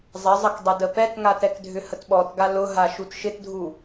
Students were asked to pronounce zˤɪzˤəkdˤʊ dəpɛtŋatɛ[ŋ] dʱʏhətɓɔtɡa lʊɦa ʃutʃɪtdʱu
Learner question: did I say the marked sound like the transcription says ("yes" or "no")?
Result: no